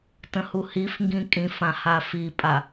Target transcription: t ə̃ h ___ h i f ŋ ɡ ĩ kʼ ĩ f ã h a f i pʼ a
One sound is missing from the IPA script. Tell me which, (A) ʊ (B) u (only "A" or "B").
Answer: B